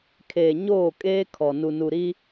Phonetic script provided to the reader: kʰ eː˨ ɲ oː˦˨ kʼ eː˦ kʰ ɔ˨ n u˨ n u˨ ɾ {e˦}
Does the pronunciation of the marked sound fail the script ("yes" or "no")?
yes